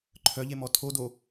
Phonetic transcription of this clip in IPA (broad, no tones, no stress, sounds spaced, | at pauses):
ǃʰ œ ʎ e m ɔ tʰ o d o